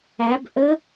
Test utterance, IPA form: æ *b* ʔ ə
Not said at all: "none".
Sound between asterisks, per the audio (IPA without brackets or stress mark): b